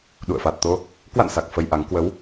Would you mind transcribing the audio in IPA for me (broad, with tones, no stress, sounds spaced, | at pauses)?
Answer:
ɗ ṵ˧˨ ə̯ f a˨˩ t̚ t̪ o˧ | k w a̰˧˨ n s a˨˩ k̚ f ə˧ j ʔ a˨˦ ŋ k w ə˨˦ w